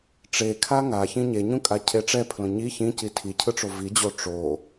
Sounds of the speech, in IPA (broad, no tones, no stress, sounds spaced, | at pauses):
ʈ͡ʂ e kʰ a ŋ a ç ĩ ɲ e ɲ ũ kʼ a cʰ e ʈ͡ʂ ɛ pʰ l õ ɲ i ç ĩ c i tʰ i cʰ ɯ ʈ͡ʂ o v i d͡ʑ o ʈ͡ʂ o